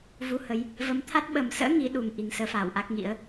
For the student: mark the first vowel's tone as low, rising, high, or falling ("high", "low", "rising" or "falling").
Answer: rising